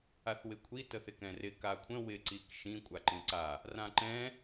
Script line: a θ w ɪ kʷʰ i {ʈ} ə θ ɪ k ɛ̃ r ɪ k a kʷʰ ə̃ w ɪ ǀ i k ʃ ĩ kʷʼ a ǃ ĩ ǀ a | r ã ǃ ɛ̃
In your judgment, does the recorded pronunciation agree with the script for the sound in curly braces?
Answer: no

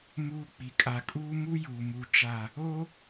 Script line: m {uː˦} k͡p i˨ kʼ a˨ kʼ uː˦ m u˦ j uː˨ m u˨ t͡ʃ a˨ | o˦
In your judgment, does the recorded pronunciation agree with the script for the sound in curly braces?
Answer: yes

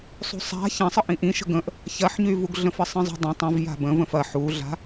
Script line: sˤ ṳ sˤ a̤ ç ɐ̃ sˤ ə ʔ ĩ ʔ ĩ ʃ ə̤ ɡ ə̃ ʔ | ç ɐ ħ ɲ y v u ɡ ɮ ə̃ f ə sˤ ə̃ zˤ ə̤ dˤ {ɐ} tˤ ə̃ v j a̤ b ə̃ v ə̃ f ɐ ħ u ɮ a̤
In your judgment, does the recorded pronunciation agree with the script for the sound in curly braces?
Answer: no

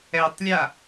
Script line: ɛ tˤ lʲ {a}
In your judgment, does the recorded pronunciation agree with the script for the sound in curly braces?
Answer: yes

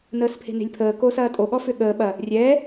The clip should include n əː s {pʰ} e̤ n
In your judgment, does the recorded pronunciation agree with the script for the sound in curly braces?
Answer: yes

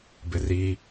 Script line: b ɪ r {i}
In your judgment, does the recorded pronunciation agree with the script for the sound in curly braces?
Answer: yes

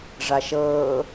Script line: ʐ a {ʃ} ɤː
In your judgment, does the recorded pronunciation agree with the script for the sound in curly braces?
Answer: yes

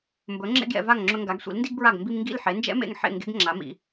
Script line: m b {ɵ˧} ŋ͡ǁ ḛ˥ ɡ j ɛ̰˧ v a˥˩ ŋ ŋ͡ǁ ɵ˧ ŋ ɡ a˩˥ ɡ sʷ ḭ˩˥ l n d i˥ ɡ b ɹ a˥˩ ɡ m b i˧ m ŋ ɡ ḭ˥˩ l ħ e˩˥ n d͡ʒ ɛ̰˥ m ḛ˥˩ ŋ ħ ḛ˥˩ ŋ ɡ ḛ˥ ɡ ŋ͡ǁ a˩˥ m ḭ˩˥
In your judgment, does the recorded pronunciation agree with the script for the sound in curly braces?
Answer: no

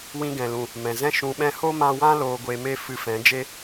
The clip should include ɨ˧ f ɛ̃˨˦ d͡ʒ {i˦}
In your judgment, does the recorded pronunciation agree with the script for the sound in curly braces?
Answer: no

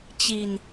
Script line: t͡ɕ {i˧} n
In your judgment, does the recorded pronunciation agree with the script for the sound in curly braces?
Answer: yes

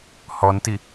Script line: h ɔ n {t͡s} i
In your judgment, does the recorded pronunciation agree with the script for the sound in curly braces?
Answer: no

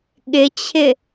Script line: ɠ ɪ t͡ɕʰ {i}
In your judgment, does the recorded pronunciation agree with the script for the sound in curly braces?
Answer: no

